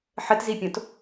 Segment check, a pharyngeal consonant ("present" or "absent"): present